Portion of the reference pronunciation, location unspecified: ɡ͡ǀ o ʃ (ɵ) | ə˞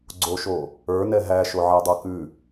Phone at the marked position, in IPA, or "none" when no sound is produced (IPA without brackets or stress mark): o